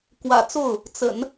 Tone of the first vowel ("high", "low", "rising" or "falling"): low